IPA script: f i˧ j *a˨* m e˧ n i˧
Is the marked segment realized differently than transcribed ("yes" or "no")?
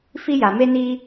no